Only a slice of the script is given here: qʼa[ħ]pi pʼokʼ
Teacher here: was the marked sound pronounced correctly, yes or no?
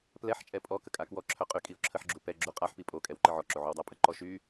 yes